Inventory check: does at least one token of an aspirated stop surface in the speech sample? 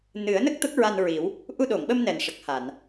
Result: no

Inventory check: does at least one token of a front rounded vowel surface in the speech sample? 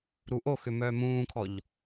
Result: yes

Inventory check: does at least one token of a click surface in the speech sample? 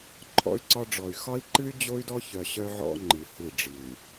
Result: yes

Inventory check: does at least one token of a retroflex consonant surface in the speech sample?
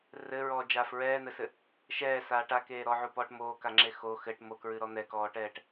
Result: yes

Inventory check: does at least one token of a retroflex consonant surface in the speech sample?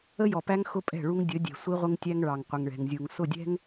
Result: yes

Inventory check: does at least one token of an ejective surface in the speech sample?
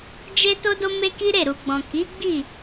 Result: no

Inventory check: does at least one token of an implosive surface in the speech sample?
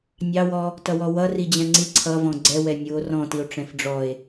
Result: no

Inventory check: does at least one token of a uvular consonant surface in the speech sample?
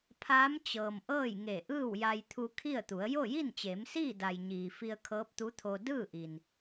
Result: no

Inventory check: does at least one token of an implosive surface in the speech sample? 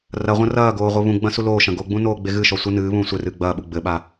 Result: yes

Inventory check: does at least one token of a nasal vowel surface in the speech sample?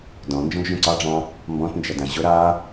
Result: yes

